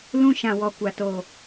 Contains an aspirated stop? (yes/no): no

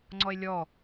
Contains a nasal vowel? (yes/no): no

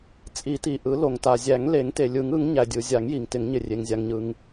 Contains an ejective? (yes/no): yes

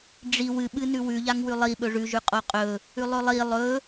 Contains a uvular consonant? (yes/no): yes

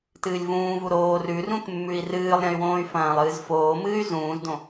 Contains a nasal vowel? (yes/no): yes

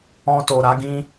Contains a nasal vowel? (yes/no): yes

